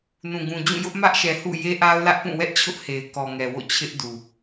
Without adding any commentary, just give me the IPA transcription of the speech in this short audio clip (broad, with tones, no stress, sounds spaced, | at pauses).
n ũ˨ ɡ ũ˨ d͡ʑ ũ˦˨ j ʊ˦ ʔ m ä˦ ʔ ʃ ɛ˨ h ṵ˦˨ j e˦ ʔ a˦ ʊ̯ l ä˦ ʔ p ũ˦˨ w ɛ˦ ʔ t͡ɕʰ ʊ˦ ʔ h e˨ ɪ̯ k ɔ˨ ŋ ɛ˨ w o̰˦˨ t͡ɕʰ ɪ˦ ʔ d u˨